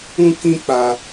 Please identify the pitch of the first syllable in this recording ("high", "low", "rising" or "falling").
high